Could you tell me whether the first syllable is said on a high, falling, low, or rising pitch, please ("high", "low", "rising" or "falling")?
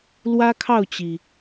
high